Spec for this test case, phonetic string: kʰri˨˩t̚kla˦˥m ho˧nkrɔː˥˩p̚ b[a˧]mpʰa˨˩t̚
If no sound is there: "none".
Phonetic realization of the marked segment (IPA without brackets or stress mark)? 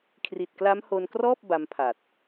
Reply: a˦˥